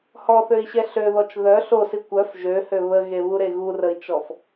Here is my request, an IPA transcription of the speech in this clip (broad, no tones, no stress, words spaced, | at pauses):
hɔθøi̯ɕɛ ɬøðɔt͡ʃ ðœ ɬosi kʷœf ʒøhø βəɣeβuɾe ɣurəi̯t͡ʃɔf